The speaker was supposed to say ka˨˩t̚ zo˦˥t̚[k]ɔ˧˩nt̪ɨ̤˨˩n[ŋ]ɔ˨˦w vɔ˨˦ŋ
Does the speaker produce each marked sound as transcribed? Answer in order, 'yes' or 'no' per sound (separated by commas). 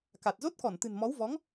yes, no